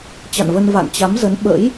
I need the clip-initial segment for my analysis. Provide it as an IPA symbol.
t͡ɕ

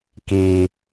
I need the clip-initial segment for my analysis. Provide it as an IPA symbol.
k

